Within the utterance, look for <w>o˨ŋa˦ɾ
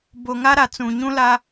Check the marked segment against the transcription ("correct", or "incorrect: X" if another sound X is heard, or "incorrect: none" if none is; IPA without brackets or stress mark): incorrect: b